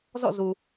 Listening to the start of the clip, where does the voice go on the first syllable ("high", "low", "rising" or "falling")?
falling